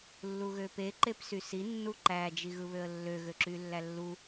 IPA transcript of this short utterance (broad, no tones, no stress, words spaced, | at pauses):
lːuɣøpe ǃepsysi nːuǃæ d͡ʒiɣɯβøə̯lːø ɣøǁylːælːu